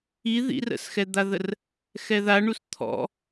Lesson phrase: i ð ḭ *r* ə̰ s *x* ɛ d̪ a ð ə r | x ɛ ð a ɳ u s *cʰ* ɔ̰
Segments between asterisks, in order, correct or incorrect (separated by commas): correct, correct, incorrect